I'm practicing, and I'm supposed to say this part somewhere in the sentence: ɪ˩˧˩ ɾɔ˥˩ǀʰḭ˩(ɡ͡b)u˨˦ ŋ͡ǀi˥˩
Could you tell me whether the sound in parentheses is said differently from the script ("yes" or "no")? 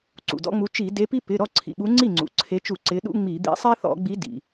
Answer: yes